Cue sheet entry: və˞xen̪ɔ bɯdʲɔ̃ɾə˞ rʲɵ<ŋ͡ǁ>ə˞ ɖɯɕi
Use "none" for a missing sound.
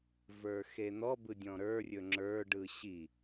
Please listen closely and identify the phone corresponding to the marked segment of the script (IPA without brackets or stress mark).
ŋ͡ǁ